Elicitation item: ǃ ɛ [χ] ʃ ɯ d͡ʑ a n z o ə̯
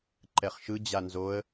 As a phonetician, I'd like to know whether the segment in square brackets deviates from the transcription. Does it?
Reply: no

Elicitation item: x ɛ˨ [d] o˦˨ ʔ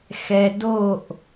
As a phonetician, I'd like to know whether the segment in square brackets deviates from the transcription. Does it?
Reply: no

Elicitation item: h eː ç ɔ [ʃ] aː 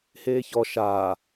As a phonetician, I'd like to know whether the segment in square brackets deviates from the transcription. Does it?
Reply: no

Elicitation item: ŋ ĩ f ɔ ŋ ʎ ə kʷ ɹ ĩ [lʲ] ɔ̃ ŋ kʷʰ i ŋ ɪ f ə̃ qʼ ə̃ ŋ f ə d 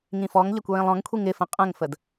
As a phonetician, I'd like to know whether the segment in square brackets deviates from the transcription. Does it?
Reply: yes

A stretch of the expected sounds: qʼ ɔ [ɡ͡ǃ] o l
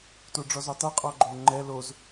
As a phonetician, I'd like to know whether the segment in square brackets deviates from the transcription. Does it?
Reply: no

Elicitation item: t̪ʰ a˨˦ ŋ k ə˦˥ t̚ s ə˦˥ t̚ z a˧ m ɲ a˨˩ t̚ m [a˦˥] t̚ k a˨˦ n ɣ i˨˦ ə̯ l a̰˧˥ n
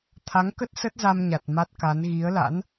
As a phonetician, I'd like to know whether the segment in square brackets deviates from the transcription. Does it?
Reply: no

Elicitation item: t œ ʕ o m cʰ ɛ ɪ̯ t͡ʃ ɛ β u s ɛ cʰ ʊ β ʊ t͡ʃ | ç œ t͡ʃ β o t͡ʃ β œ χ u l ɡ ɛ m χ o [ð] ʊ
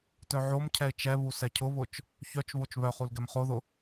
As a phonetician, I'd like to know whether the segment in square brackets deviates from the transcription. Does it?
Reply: no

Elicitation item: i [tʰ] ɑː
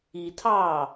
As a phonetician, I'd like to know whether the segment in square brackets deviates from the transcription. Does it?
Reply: no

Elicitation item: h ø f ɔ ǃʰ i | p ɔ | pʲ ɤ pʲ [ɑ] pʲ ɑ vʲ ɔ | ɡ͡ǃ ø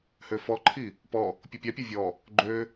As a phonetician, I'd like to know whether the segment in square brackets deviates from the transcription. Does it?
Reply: no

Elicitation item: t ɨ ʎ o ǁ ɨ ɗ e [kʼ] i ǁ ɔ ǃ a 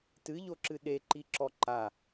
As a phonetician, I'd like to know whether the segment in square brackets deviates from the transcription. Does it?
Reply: yes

